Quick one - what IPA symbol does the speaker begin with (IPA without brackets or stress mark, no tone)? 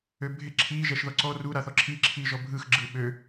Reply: ø